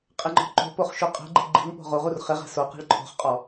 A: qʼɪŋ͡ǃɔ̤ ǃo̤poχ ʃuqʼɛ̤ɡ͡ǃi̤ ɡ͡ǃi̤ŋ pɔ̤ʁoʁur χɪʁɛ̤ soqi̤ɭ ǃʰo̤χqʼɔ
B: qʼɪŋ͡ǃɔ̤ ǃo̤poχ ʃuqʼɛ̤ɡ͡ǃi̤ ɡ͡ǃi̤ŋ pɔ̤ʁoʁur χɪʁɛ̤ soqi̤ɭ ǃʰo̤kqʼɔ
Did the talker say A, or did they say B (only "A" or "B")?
A